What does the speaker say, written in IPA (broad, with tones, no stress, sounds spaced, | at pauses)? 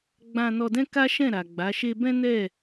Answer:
ɡ͡b ã˧ n ɔ˧ d ɛ̃˦ k a˦ ʃ ɛ̃˦˨ ɾ a˨ ɡ͡b a˨˦ ʃ e˦ b ɛ̃˦ n ɛ˦˨